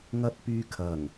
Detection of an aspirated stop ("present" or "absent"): present